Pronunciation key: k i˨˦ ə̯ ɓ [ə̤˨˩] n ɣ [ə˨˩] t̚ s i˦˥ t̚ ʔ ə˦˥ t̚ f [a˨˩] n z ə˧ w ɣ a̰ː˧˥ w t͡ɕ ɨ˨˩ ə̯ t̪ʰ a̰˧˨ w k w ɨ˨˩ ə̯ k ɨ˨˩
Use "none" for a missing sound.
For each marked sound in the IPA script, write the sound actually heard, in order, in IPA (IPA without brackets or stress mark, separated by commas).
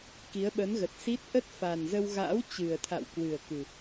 ə˨˦, ə˨˩, a˨˩